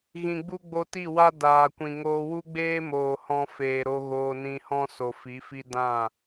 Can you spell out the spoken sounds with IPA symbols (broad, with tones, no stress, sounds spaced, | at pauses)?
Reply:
ɣ ĩ˨ ɡ͡b u˧ ɡ͡b o˧ t i˦˨ w a˦ d aː˨ kʷ ĩ˨ ŋ oː˧ w u˦ ɡ͡b eː˦ m oː˨ h ɔ̃˧ f eː˨ ɾ o˧ ɣ oː˧ n ĩ˧ h ɔ̃˦ s o˨ f i˨˦ f i˦ d ã˦˨